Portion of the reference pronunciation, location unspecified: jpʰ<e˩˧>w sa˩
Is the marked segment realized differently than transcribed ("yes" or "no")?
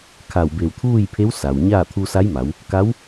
yes